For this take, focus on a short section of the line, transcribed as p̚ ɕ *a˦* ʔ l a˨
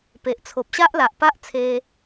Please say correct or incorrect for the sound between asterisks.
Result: correct